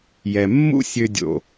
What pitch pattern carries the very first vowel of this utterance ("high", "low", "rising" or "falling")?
low